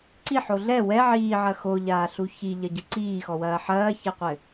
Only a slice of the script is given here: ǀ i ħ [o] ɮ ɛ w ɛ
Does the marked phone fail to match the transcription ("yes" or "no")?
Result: no